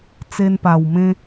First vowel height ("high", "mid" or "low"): mid